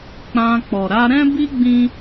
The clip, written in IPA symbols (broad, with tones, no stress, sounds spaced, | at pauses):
k͡p ã˧ k͡p ɔ˨ ɾ a˧ ɾ ɛ̃˦ b i˦ ɡ͡b ĩ˦